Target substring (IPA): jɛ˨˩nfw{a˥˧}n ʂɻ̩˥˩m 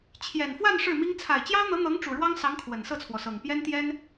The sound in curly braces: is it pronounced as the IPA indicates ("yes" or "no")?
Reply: yes